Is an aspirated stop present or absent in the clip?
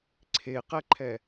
present